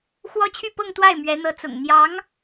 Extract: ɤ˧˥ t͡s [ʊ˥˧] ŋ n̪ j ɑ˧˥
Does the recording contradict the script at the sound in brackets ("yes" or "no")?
yes